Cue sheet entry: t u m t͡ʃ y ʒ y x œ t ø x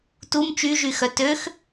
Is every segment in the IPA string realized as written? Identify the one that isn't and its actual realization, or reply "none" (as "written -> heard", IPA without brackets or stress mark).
none